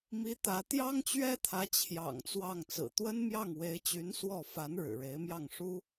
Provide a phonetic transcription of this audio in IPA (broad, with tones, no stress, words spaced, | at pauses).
mi˧˥ t̪ä˧˥ t̪jɑ˥ŋt͡ɕɥɛ˥t̪ʰä˧˥ t͡ɕʰjɑ̰˨˩ŋ t͡swɑ˥˩ŋ t͡sɹ̩˨˩ t̪wə˥nmjɑ˥˩ŋwe˧˥ɪ̯t͡ɕy˧˥n swɔ˥˩ fa˧˥n ɻɻ̩˨˩ɻe˧˥ɪ̯mjɑ˥˩ŋ ʂu˥